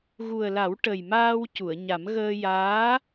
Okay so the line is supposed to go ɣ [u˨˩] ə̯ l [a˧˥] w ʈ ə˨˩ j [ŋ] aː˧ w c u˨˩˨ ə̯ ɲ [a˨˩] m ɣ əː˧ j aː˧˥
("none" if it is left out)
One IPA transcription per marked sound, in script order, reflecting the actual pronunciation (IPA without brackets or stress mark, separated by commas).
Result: u˨˩, a˨˩˦, m, a˨˩˦